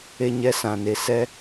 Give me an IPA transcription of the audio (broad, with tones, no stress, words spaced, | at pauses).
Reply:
e˦ ɲɛ˦sã˨ne˨ sɛ˦